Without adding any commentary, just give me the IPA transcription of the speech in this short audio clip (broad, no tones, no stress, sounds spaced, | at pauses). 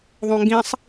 ðˤ õ ŋ ɡ ĩ sˤ